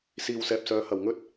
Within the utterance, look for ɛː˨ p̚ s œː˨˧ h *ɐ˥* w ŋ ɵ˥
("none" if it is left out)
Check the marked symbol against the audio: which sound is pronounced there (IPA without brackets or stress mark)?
ɐ˨